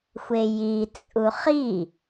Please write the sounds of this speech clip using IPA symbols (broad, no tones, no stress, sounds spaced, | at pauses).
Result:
xʷ e j i t͡sʼ u χ i